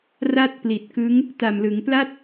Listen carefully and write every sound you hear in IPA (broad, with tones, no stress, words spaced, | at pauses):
ra˥˩t̚pli˨˩t̚kɯ˦˥ŋ | ta˨˩mlɯ˩˦ŋpla˥˩t̚